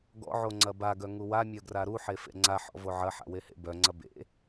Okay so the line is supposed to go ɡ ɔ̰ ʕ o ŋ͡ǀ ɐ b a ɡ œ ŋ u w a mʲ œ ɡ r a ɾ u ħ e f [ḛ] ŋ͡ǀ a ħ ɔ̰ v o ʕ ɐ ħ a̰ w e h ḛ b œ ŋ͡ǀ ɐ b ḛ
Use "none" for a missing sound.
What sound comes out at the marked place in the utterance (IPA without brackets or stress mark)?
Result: ḛ